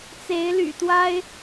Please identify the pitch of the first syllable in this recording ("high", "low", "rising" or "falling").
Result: rising